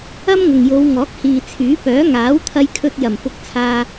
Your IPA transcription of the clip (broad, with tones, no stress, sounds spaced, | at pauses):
ɐ˥ m ŋ ʊ˨ ŋ j o˨˧ w ŋ ɔː˨˥ k̚ h iː˨ t͡sʰ yː˨˥ p œː˨˥ ŋ aː˨˥ w t̪ʰ ɐ˧ j kʰ ɵ˧ t̚ j ɐ˨˩ m f ʊ˧ k̚ t͡sʰ aː˧